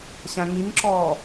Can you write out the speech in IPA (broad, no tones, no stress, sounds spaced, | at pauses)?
ɕ æ̃ ŋ i ŋ ǁ ɔː